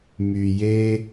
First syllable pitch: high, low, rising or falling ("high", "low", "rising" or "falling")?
low